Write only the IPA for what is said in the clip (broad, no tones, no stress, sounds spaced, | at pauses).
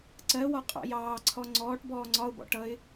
ǀ ɜ w ɒ qʼ ɑ̰ j ɑː ǀʰ ɔ ŋ͡ǀ ɔː ʈ b ɔː ŋ͡ǀ ɒ ʊ̯ b ɔ̰ ʈ ʌ ɪ̯